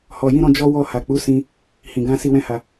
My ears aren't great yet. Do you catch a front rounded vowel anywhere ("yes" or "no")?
no